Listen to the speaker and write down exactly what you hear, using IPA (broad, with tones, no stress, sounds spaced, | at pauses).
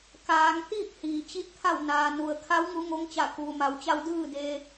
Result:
k aː˩˧ ŋ t̪ iː˥˨ k̚ h iː˩ t͡ɕ i˧˥ t̚ t̪ʰ a˧˩ w n aː˩ n u˩ ə̯ kʰ a˧˥ w ŋ u˧˥ ŋ o˧˥ ŋ t͡ɕ a˧˩ k uː˩ m a˩˧ w t͡ɕ a˧ w d ɯː˥˨ d e˧